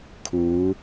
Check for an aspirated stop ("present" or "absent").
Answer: present